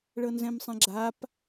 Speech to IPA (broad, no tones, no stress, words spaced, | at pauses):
ɭɤnzɛ̃msˤɛ̃ɡ͡ǁap